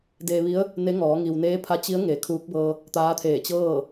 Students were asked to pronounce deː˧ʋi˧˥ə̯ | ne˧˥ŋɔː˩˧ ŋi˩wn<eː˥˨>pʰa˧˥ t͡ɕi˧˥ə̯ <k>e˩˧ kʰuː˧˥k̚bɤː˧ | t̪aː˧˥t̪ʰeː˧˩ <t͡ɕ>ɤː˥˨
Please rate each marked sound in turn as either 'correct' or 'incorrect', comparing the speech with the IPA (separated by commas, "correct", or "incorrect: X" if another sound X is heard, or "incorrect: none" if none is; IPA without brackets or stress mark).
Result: incorrect: eː˧˥, incorrect: ŋ, correct